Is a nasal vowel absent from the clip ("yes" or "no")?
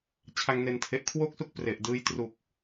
yes